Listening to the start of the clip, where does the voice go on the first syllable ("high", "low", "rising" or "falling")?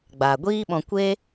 low